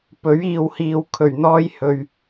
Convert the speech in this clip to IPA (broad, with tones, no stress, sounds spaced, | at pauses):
p ɵ˨˥ ɥ iː˨ w h iː˨ w kʰ ɵ˨˩ ɥ n̪ ɔː˧ j h ɵ˨ ɥ